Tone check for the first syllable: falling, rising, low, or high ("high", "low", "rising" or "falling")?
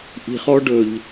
low